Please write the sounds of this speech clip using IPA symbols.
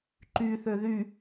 ǃyθø ðy

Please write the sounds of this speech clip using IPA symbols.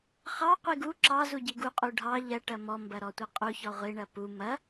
χɑqʷi ɡu ǁɑzu ɟiɡuqʼu ɖʱɑ ʎɐ ʈɐmɔmbɐ ɾɔtʷɐqʼuçɔ ʁʷiɳɐ pu mɐ

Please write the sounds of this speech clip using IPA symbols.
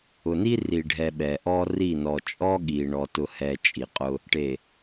ʊ˨ni˦ri˨ɖʱɛ˨ ɓɛ˨ʔɔ˦ ri˦˨ nɔ˨t͡ʃʼɔ˦ɠi˨ ɳɔ˨tʊ˨hɛ˨ t͡ʃʼi˨qʼʊ˦ | ʈe˨

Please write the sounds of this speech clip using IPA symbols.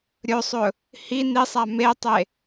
ɾʲɵsˤɵ | hi nisˤa metˤe

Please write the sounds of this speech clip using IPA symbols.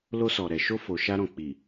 lo˧sɔ˨ ɾɛ˨ʃo˧ fo˨ ʃa˧ɾɔ̃˨ k͡pi˨

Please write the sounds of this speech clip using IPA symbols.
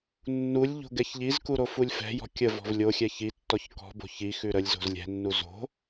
nːulʲʎo̤ ɡɛçʎizku ɾofulʲfɛ̤jɔ̤ kʲə vɔ̤vlʲoxʲɛ çitːɔç kɔ̤bo̤ çixʉ ɾəlʲzo̤z lʲɛ̤nːu zo̤

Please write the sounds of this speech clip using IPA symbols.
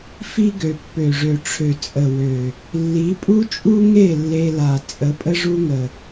fi˦ɡø˨ pːø˨ʐø˨ʈ͡ʂʰø˨ t͡sʼə˨wø˨ | lːi˨˦pʼu˦t͡ʃʼu˦ŋe˦˨ lːe˧la˨ t͡sʼə˨˦pʼə˦ʐu˦ŋə˨

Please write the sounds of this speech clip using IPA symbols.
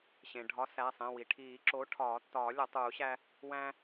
ɕẽ˩ɖʱɒ˨˥ sæ˩˧˩sˤẽ˩˧˩wi˩ ʈʰiː˨˩˦ ǁo˨˥ʈʰɒː˨˩˦ tːɒː˨˩˦ lʲɒ˨˩˦tˤuː˨˩˦ɕæ˦ | wæ̃˦

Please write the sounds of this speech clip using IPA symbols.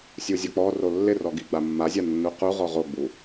sʲuzʲɔk͡pɔro lːɪrɔ ɡiɡ͡bamːazʲa nːuquʁɔ ʁoɡ͡bu

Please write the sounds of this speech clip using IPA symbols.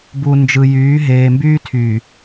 bu˨nd͡ʒɯ˨jyː˨˦ ɦeː˨mbyː˦tʰyː˨

